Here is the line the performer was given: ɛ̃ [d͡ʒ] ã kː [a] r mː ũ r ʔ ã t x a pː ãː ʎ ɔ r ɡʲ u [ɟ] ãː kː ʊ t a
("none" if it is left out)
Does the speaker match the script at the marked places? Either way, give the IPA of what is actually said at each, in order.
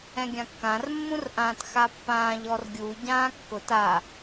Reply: ɡʲ, ã, ɟ

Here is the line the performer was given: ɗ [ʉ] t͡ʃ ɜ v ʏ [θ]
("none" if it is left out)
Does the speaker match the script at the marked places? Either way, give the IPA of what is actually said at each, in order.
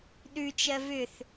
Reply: ʉ, θ

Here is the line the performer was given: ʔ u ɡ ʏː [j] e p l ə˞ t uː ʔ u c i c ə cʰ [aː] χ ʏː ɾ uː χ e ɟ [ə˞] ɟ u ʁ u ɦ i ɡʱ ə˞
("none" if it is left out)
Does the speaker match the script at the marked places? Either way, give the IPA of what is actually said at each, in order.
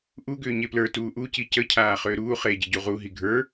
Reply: ɲ, aː, ə

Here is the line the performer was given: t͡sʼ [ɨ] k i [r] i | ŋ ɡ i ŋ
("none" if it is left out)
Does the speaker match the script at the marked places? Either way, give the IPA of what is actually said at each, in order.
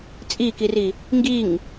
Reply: i, r

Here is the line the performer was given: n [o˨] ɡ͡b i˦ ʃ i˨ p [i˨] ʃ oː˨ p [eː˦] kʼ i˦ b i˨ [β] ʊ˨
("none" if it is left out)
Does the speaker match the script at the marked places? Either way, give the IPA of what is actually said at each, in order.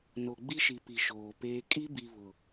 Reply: o˨, i˨, eː˦, β

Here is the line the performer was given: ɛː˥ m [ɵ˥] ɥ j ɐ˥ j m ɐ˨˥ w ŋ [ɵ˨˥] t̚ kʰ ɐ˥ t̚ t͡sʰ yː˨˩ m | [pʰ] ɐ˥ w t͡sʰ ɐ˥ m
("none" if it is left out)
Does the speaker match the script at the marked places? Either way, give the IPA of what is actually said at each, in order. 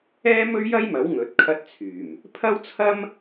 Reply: ɵ˥, ɵ˨˥, pʰ

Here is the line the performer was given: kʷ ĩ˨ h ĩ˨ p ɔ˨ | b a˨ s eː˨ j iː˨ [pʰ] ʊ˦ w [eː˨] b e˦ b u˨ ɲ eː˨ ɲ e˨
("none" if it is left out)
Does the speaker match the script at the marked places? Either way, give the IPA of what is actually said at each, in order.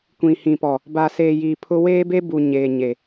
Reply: pʰ, eː˦

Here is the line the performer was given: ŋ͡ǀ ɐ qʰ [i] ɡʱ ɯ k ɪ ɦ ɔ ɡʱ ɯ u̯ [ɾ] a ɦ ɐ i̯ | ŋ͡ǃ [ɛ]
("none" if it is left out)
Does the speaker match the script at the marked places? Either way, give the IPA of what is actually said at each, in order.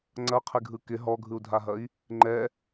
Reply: ɪ, dʱ, ɛ

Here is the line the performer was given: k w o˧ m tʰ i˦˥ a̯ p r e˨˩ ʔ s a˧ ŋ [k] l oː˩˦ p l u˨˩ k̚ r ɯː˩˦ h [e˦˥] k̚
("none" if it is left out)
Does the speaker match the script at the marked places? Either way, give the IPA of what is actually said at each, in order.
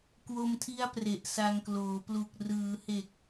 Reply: k, e˨˩

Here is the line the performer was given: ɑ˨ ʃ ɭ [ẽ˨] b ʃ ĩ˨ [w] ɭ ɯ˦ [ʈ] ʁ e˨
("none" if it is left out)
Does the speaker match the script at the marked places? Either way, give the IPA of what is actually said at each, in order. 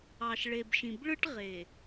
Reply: e˨, b, ʈ

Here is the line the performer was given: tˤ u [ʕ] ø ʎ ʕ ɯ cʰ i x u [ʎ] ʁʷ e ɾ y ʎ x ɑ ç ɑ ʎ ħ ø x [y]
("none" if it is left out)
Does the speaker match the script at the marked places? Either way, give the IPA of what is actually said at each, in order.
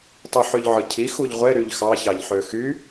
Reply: ħ, ʎ, y

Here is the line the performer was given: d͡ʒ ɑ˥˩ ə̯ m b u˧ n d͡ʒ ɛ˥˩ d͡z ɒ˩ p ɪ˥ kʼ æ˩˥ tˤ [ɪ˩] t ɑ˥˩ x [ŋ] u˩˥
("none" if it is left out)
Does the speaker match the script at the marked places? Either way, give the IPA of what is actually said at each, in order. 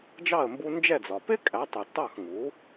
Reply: ɪ˩, ŋ

